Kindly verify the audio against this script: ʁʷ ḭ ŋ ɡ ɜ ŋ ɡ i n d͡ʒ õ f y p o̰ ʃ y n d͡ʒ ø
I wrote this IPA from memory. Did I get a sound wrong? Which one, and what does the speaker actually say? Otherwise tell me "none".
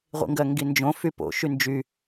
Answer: ø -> y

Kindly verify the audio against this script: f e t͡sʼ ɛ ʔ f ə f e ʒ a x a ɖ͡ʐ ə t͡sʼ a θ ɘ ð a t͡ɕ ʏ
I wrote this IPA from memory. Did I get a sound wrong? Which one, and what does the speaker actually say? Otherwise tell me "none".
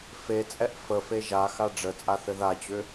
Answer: none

